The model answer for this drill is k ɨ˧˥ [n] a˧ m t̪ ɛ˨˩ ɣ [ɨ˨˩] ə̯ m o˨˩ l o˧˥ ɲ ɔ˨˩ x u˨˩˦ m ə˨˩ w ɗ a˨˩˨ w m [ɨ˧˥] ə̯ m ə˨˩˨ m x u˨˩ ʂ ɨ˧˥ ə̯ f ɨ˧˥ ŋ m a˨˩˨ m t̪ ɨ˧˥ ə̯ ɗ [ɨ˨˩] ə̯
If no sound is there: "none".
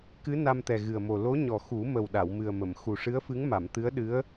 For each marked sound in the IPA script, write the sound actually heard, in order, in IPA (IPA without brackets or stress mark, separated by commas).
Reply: n, ɨ˨˩, ɨ˨˩, ɨ˧˥